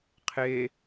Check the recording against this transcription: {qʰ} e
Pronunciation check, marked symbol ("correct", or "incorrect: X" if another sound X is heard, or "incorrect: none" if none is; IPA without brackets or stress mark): correct